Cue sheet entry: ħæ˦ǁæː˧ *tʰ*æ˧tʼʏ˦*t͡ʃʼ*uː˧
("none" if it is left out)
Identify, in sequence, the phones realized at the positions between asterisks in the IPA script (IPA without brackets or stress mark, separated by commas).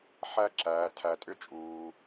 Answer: tʰ, t͡ʃʼ